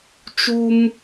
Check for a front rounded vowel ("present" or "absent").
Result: absent